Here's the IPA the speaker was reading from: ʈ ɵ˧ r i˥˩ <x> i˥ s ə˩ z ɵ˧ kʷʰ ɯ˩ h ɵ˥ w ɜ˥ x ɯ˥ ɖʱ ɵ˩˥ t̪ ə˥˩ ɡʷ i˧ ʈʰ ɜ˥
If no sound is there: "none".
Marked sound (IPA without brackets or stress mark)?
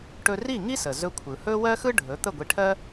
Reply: ŋ